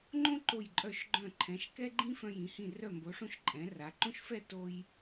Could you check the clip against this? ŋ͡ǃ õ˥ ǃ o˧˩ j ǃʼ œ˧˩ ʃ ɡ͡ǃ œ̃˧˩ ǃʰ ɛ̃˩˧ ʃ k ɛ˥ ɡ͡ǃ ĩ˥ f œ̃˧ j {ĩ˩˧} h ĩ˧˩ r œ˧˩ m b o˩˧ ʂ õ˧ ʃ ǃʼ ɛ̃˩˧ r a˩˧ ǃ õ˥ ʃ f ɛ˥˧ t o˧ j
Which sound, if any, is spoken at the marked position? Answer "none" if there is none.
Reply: ĩ˩˧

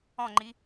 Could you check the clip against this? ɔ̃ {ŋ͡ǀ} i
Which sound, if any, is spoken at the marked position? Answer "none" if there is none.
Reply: ŋ͡ǃ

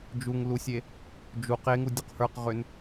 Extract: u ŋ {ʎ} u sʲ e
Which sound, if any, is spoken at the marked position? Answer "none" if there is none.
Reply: l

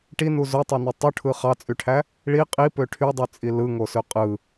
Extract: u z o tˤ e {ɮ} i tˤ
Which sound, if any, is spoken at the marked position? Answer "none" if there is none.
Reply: n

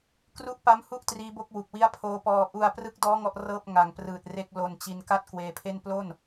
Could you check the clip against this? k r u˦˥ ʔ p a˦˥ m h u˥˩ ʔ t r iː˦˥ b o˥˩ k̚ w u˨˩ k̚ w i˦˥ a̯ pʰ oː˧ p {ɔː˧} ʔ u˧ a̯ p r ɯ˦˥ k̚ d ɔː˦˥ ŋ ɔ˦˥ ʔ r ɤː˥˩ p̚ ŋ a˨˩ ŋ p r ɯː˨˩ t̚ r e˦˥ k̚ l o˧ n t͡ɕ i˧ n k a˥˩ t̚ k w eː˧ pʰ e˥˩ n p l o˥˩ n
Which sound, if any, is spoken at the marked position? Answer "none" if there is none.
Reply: ɔː˧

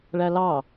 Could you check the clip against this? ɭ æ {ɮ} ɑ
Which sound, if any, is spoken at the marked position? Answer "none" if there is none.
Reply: l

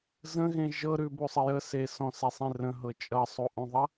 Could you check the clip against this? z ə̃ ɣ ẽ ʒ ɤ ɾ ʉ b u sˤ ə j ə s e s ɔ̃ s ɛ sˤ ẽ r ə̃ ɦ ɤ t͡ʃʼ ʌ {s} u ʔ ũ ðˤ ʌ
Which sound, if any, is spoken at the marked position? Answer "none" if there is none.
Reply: sˤ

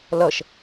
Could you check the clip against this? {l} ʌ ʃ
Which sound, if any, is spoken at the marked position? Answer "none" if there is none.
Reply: l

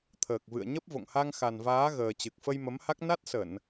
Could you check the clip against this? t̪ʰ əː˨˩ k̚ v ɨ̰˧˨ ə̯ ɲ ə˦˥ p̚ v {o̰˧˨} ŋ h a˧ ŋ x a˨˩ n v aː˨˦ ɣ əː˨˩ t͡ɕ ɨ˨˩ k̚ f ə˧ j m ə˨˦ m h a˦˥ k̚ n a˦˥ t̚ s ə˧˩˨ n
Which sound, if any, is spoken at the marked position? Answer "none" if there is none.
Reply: o̰˧˨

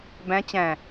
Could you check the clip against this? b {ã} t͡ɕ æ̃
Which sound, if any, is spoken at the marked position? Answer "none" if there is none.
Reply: æ̃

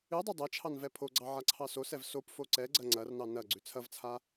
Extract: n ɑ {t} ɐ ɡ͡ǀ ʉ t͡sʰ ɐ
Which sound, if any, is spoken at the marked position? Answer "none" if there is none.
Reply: n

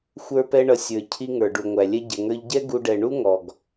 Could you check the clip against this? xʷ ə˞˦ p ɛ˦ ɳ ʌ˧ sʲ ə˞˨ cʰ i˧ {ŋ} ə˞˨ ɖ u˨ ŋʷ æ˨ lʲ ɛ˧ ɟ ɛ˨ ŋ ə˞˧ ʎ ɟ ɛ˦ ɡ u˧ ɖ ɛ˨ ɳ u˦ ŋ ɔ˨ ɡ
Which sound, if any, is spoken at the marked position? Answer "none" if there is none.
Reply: ŋ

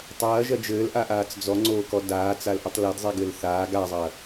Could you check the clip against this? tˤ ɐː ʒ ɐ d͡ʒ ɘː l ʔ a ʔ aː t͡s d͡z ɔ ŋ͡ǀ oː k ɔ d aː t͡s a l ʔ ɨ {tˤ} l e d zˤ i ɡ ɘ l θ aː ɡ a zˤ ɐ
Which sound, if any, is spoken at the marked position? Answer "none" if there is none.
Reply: tˤ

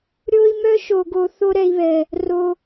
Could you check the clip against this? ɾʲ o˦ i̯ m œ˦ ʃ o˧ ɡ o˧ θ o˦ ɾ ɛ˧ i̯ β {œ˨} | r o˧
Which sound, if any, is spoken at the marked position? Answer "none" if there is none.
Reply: ɛ˨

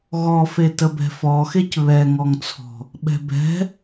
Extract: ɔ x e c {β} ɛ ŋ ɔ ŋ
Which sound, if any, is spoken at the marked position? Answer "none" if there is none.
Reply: β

